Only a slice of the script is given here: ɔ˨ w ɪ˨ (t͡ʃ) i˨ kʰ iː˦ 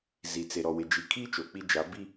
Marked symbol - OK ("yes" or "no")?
no